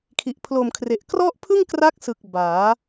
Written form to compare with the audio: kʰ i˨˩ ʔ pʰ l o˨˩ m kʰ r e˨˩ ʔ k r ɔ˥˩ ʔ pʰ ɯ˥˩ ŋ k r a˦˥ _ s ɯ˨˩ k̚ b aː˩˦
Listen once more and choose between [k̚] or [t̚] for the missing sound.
k̚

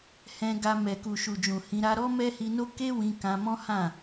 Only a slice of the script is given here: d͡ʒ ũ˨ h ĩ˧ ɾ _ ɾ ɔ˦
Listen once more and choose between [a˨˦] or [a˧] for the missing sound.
a˧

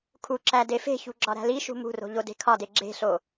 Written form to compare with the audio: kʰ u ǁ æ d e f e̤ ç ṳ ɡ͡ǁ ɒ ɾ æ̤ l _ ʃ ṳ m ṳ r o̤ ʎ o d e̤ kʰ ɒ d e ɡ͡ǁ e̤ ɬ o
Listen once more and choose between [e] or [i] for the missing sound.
i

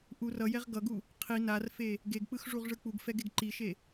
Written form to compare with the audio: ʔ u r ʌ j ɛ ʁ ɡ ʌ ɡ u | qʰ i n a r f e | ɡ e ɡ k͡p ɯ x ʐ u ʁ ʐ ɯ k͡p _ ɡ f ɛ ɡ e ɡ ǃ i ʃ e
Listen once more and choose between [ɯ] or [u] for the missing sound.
u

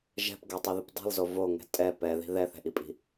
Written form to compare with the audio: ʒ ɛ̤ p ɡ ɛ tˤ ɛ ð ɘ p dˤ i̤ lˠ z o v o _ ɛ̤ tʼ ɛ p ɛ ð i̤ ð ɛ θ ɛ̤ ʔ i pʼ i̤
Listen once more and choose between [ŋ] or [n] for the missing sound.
ŋ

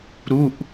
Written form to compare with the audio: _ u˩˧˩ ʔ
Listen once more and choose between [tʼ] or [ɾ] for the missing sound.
ɾ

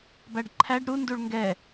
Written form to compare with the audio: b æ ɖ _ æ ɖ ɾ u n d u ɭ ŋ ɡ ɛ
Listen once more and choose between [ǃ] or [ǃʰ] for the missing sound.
ǃʰ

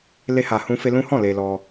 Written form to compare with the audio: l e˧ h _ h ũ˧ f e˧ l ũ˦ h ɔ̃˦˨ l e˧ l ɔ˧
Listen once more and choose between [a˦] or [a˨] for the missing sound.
a˨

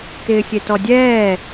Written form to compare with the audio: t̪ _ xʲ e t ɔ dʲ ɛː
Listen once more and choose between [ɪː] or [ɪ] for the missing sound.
ɪː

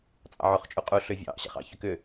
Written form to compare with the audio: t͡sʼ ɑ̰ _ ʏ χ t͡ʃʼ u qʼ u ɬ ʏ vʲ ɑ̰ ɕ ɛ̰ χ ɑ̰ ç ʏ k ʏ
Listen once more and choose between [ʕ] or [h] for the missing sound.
ʕ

